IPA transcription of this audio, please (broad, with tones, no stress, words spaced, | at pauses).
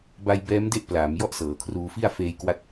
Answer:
ba˧jbɛː˦˥mde˥˩ʔ plaː˩˦m jɔ˥˩ʔsɤː˩˦kʰruː˧fi˥˩a̯ feː˧jkwa˦˥t̚